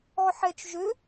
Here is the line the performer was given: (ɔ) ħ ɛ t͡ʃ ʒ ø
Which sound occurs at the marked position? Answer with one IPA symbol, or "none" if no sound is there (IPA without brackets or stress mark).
ɔ